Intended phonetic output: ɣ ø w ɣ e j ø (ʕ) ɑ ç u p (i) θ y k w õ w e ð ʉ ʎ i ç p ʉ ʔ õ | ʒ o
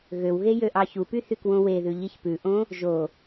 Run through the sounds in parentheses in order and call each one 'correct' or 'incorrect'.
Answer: incorrect: ʔ, incorrect: y

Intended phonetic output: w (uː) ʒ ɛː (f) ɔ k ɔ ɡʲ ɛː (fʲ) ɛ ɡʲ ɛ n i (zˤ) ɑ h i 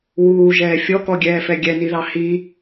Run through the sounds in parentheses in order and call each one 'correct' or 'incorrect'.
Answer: correct, incorrect: fʲ, incorrect: f, incorrect: ð

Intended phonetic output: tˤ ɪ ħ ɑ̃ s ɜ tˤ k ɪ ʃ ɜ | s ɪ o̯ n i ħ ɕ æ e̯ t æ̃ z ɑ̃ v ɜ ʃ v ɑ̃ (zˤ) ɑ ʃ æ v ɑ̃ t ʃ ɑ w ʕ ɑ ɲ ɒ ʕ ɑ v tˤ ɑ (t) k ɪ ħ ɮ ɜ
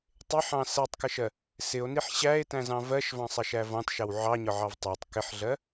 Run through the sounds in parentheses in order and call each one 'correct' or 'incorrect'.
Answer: incorrect: sˤ, incorrect: tˤ

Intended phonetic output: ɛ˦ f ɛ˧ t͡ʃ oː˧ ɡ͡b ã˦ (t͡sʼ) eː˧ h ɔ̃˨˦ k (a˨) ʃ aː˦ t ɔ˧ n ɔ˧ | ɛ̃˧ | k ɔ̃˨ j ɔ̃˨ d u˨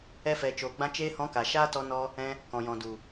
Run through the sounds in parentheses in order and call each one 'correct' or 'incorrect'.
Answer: incorrect: t͡ʃ, correct

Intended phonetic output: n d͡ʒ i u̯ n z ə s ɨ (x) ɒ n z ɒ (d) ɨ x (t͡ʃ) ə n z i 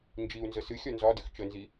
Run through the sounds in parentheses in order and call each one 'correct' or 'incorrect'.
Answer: incorrect: xʲ, correct, correct

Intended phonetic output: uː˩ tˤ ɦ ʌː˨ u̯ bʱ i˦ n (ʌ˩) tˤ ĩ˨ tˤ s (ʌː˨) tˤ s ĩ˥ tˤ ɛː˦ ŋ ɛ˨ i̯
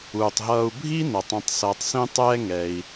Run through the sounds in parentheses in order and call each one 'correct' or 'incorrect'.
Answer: correct, correct

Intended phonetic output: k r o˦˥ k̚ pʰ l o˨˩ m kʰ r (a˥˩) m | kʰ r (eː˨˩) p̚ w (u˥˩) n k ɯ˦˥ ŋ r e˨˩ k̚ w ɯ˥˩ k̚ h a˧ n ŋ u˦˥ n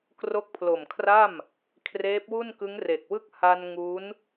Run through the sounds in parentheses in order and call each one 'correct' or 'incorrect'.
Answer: correct, incorrect: eː˦˥, correct

